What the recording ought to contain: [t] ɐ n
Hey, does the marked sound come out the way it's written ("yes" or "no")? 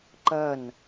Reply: no